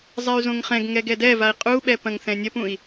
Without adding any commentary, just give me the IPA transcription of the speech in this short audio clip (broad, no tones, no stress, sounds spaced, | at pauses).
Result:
zˤ ɛ y̯ z õ ŋ χ ɛ̃ ɡ ŋ ɛ ɡ ɛ d ɛ v a i̯ qʼ u ɓ ɛ p ɐ̃ ŋ θ ɛ̃ nʲ ɐ p ũ i̯